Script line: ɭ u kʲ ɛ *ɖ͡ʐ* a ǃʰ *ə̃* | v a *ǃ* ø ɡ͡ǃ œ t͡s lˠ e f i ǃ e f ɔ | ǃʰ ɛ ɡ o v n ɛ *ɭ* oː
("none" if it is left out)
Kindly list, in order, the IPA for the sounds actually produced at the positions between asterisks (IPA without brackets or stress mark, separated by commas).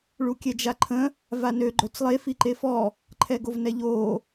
d͡ʒ, ə̃, n, ʎ